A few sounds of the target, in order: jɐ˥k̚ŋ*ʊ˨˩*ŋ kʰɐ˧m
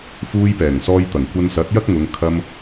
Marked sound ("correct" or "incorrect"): incorrect